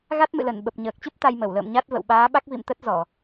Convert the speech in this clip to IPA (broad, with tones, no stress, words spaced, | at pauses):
ɣa˦˥t̚mɨ̰˧˨ lə˧˩n ɓə˨˩p̚ɲəː˨˩k̚t͡ɕɨ˦˥p̚ t̪a˧jmə˧˩wlə̰ː˧˨m ɲa˦˥t̚və̰˧˨w ɓaː˨˦ɓa˦˥k̚ vḭ˧˨mt̪ə˦˥t̚ zɔ˧˩˨